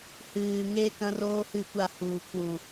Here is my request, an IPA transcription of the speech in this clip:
h ɨː˨ ŋ e˦ k ɐ̃˦ r oː˦ h ɨ˦˨ kʷ a˦˨ h uː˨ kʰ w ũ˨

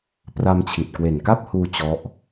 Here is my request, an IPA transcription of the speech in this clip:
p r a˧ m t͡ɕʰ i˨˩ t̚ k w e˨˩ n k a˥˩ p̚ h uː˧ t͡ɕ ɔ˦˥ ʔ

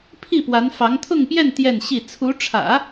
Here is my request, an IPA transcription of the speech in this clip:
pʰ i˥˩ p w a˧˥ n f ɑ˧˥ ŋ t̪ʰ ʊ˥˧ ŋ p j ɛ˥˧ n t̪ j ɛ˥˧ n ɕ i˥˩ t͡sʰ u˧˥ ʈ͡ʂʰ ä̰˨˩˦

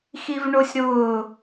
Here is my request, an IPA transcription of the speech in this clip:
x i v ɳ o sʲ ɾ ʊː

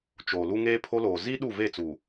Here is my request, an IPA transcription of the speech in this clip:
t͡ʃ oː˨ l u˦ ŋ eː˦ pʰ o˦ l oː˨ z i˦ ɗ u˦˨ v e˦˨ t͡s uː˨

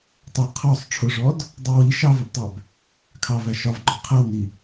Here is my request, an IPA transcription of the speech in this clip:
tˤ ʌ qʰ ɔ sˤ ʈ͡ʂʰ ʊ ʐ ɔ d | dˤ ɜ w i ʃ ɑ v ɜ b tˤ æ b | kʰ ɑ v æ ʃ ɒ v ɡ͡ǃ ɔ qʰ ɜ w n i

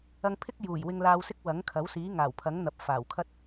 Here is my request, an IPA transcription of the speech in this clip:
ɐ˧ ŋ pʰ ɪ˥ k̚ j uː˨˩ j w ɪ˧ ŋ l aː˧ w s ɪ˥ k̚ w ɐ˨˥ ŋ kʰ ɐ˨˥ w s iː˨˥ ŋ aː˨˩ w pʰ ɐ˨˥ ŋ n̪ ɐ˨ p̚ f aː˨˩ w kʰ ɐ˥ t̚

